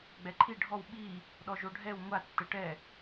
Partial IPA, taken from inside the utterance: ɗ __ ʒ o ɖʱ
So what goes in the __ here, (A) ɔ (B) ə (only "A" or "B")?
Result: A